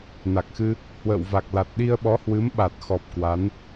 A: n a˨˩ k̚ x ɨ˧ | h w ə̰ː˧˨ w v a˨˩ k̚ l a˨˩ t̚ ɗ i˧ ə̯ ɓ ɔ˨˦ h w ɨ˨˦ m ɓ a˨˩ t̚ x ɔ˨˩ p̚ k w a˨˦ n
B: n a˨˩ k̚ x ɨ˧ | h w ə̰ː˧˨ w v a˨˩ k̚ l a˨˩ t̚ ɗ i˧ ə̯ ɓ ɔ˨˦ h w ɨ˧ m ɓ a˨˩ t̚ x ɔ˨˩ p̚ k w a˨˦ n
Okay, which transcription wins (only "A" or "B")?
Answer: A